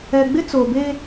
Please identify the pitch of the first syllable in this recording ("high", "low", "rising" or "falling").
low